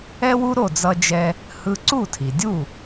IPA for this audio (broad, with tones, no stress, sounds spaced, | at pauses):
ɛ˥ w u˥ ɾ o˥˩ d͡z ʌ˧ d͡ʒ ɛ˧ | h ɯ˧ ǀ u˥˩ tʰ i˩ dʲ u˥˩